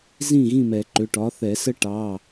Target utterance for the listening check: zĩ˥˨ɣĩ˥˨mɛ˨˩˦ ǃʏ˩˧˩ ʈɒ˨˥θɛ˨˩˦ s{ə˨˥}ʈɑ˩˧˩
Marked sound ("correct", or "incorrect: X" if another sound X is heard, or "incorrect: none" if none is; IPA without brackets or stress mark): incorrect: ə˦